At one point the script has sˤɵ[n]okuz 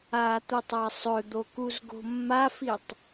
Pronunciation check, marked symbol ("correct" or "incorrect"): incorrect